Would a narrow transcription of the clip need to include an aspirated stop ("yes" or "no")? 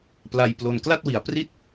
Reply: no